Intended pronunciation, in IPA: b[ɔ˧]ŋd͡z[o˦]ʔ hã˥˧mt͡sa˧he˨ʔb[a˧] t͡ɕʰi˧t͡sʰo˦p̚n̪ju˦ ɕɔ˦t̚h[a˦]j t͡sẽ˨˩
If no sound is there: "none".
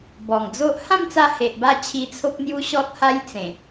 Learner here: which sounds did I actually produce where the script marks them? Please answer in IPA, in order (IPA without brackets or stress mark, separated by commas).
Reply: ɔ˨˩, o˦, a˧, a˦